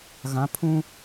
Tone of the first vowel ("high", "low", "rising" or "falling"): rising